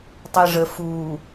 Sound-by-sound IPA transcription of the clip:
tˤ ɛ ʐ ə f u

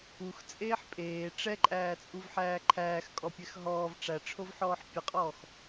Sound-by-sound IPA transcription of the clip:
u x t͡sʼ eː ħ pʼ eː ʈ͡ʂ ɛ ǃʼ æː t͡sʼ u v ħ æː ǃʰ æː x kʼ ɔ pʲ ɛ x ɦ ɔː v ʈ͡ʂ æ ʈ͡ʂʰ o v ħ ɔː ħ pʲ ə qʼ ɔː x

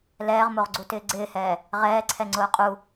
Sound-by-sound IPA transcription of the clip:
l ɛː ʁ m o ʁ ɡ͡ǀ u t ɪː ɡ͡ǀ ɪː h ɛː | ʁ ɛː ǀʰ ɛ ŋ͡ǀ ʊː qʼ u

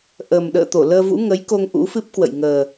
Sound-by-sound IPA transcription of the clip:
ʔ ə˨˩ m ɗ ə̰ː˧˨ t̪ o˧˩ l əː˧ v ṵ˧˥ ŋ ə˨˦ j k o˧ ŋ ʔ ṵ˧˥ f ɨ˦˥ p̚ k w ə̰˧˨ j ŋ əː˨˩

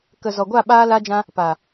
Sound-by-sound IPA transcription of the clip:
k ə˨ z ɔ˨ ɡʷ a˦˨ ɓ aː˦ l a˦ d͡ʒ ã˦ | p a˨

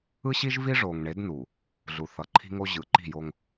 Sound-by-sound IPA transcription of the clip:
ɯ˦ ɕ i˦ ʒ v i˦ ʐ o˨ ŋ ɳ e˨˦ d n u˨ | ɮ u˨ θ ʌ˨ ǃʰ i̤˦ ŋ o˦ ʑ ɯ˨˦ ǃ i̤˦˨ j o˦ ŋ

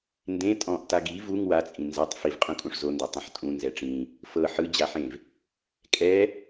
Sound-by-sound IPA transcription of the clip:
n d ẽ tʼ ɔ̃ ʔ t a ɡ i v u ŋ w a t͡sʼ ĩ n z a tˤ f i v qʼ ũ kʼ ũ ʂ z o n d a tˤ ũ ħ tʼ ũ n z ɛ ʈ͡ʂ ĩ | f ɤ ħ ɯ d͡ʑ a ħ ẽ v | kʼ ɛ

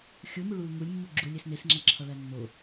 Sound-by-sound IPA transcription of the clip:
xʲ u m u ɭ u l ŋ u lʲ mː u ɡ͡ǁ u lʲ e s n e s ŋ͡ǁ æ ǁʰ ɒ ɭ æ nː o

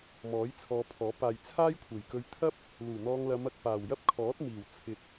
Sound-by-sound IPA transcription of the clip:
m ɔː˨˥ j t͡sʰ ɔː˨˧ pʰ ɔː˨˥ p aː˨ j t͡sʰ aː˥ j kʷʰ e˨˩ j k ɵ˧ ɥ t̪ʰ ɐ˥ p̚ | l uː˨˩ n̪ ɔː˧ ŋ l ɐ˨˧ m ɐ˨ k̚ p aː˨˩ w j ɐ˥ p̚ kʰ ɔː˨˥ t̚ m iː˨˩ w t͡sʰ ɪ˨ k̚

